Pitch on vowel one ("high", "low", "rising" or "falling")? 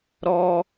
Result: high